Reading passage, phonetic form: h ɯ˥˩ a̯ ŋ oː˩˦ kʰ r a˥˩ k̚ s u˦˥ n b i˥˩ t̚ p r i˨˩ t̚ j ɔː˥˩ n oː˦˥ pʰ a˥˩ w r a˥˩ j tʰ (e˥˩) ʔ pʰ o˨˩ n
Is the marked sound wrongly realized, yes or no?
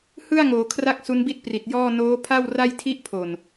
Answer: yes